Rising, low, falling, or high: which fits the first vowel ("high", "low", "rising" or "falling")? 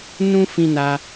high